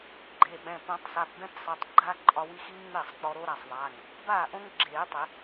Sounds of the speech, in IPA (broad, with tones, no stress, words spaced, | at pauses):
ɡ͡ǃe˩˧˩ɓɛ̃˩˧˩ põ˨˩˦tˤsa˩˧˩pbɛ̃˦˥psˤe˩˧˩tˤ ɡ͡ǃaː˦˥ǃʼɒ˧wi˦˥ xi˦˥ŋŋ͡meː˥˩sˤk͡pɔ˧ ɾo˦˥ɾa˩˧˩sˤðˤa˩˧˩ŋ | baː˥˩ʔõ˦˥ŋɡ͡ǁeː˨˩˦tˤɪ˨˩˦